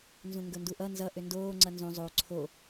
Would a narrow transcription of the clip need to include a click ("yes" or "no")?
yes